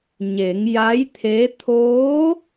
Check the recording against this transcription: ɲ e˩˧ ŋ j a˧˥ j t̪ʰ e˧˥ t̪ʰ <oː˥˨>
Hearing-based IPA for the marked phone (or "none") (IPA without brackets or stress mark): oː˧˥